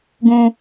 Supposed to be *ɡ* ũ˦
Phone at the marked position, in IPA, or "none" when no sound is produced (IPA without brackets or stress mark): ɡ